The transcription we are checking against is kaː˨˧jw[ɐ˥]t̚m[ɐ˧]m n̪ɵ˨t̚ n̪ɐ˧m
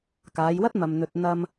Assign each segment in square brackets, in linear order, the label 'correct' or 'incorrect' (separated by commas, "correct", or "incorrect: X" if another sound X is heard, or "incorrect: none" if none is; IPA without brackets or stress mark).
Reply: correct, incorrect: ɐ˨